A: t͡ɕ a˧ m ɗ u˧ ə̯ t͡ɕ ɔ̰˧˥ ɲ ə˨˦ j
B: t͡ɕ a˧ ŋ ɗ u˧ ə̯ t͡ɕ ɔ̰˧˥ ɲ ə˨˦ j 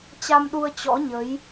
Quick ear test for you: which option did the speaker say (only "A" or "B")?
A